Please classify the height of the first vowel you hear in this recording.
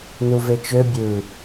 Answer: high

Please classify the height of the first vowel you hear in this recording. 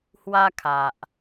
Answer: low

